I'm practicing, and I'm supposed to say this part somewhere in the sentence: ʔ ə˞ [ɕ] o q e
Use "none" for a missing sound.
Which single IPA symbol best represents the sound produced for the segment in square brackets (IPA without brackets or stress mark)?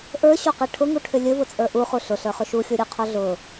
ɕ